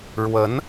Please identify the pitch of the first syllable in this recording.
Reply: rising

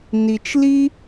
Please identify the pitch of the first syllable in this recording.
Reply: low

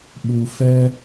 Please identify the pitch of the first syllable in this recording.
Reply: low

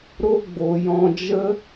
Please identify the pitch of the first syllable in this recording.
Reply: high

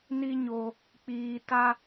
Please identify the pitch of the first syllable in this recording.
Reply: high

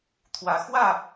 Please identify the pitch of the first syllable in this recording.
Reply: rising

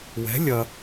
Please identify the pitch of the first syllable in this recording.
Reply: rising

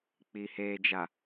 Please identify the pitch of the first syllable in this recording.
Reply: low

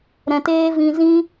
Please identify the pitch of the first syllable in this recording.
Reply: low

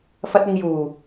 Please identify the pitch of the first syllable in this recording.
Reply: high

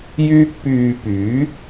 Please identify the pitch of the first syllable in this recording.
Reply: high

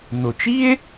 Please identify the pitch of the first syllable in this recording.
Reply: low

